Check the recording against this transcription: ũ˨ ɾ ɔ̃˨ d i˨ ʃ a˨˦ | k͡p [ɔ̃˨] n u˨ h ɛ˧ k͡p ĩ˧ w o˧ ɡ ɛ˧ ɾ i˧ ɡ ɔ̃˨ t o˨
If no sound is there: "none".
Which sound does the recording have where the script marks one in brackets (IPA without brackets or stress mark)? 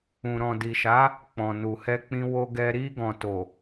ɔ̃˨